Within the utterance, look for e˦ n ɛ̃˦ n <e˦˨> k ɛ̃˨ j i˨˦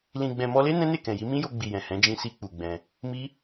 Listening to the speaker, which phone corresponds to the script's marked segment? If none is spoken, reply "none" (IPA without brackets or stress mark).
e˦˨